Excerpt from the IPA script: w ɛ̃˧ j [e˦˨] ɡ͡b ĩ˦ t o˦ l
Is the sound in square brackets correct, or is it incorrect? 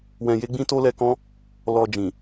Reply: incorrect